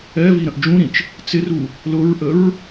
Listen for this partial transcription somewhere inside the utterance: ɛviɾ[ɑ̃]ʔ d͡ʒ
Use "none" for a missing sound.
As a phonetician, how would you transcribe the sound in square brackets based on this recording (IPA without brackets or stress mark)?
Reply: ə̃